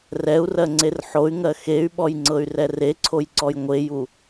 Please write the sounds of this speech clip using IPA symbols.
rɛu̯rɜ ŋ͡ǀerħoy̯ŋɜ xey̯ɓɔj ŋ͡ǀɤy̯rɛreǀʰoj ǀɔjŋʷeju

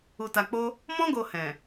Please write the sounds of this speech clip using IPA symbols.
u˧ta˧k͡po˦ | mɔ̃˦ ɡo˧hɛ̃˨

